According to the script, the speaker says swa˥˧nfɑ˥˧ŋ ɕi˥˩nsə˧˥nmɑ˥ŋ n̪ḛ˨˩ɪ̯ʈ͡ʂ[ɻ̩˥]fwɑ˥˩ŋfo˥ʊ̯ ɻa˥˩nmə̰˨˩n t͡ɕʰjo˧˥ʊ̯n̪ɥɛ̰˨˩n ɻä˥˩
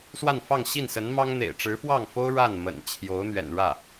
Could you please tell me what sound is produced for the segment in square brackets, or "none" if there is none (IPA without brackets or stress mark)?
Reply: ɻ̩˧˥